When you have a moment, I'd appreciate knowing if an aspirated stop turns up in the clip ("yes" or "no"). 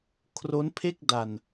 yes